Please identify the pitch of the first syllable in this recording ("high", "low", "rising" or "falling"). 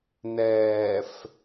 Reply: low